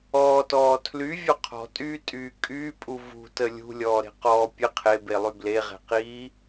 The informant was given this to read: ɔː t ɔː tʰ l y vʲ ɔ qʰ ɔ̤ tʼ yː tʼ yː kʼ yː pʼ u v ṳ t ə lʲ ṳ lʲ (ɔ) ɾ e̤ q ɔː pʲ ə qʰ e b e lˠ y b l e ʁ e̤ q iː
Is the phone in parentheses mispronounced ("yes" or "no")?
yes